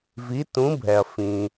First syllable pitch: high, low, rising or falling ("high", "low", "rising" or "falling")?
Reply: rising